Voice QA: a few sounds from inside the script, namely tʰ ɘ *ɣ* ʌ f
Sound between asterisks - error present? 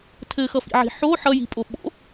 yes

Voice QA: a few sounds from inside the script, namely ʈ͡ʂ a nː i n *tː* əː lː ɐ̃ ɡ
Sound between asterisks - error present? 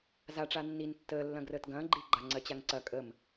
no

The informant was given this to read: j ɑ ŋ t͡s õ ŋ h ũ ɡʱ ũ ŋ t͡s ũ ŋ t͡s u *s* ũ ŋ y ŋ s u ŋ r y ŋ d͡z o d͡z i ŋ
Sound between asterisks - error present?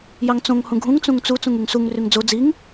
yes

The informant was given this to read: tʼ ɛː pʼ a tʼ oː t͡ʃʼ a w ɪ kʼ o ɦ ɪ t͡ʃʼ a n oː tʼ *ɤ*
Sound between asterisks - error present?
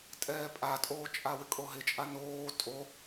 yes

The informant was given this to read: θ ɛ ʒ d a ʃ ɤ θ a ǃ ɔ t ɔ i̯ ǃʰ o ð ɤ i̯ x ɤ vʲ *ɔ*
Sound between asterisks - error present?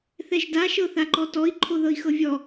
no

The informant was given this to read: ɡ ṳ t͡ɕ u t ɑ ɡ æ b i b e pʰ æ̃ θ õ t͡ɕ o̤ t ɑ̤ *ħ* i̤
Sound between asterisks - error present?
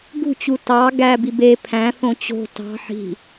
no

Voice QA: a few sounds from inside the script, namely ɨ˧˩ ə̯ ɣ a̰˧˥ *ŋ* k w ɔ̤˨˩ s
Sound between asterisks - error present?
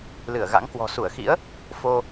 no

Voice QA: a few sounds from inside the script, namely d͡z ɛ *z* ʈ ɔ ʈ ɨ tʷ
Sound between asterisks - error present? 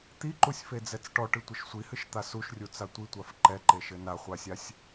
yes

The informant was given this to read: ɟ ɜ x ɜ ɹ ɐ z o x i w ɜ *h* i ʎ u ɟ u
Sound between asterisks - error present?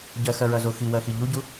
yes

